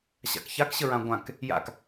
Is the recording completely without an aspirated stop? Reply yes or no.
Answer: yes